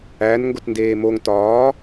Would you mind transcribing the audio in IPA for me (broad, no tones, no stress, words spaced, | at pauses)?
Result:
æn ŋɡotndeːmoŋ tɒː